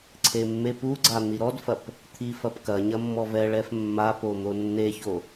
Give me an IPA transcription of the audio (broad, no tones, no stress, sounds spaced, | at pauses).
ǀʰ e mː e p u ɡ͡ǀ a n̪ i ɾ ɔ d f ɐ p | t̪ʰ i f ɐ p k ɐ ɲ ɐ mː ɔ v ɛ ɭ ɛ f mː a p o n̪ o nː e ç o